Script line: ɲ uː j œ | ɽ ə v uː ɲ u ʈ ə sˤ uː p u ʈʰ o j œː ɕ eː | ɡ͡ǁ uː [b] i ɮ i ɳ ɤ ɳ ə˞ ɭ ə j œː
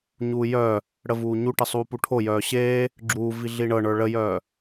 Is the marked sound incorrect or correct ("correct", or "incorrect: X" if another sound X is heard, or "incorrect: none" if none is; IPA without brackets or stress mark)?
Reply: incorrect: v